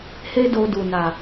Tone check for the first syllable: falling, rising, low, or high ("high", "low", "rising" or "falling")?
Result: high